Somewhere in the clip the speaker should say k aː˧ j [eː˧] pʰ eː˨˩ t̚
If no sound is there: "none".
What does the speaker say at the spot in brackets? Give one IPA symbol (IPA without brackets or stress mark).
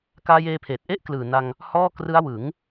eː˧